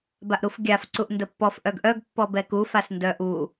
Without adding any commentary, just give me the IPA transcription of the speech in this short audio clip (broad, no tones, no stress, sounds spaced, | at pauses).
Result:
b a ʔ ɾ u f ɡʲ a f ǀ u ʔ n d ə pː ɔ f ʔ œ ɡ ʔ œ ɡ pː ɔ b ɛ k u f a s n d œ ʔ u